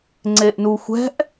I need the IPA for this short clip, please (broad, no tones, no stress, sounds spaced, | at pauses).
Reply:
ŋ͡ǀ e ʔ n u xʷ ɛ̤ ʔ